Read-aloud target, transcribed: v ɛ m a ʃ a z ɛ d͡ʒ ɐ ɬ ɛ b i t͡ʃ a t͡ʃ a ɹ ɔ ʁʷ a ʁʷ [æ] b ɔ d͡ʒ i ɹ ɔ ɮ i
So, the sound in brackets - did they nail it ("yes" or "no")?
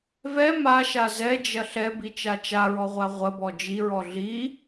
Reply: no